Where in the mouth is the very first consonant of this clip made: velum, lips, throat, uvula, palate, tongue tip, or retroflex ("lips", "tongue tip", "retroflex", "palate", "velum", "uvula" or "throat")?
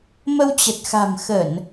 lips